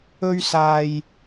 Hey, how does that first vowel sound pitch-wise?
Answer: high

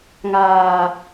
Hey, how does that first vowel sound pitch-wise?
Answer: low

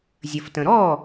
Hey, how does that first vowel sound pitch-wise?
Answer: low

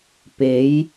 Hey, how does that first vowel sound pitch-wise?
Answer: rising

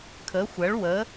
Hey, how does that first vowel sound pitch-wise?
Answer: rising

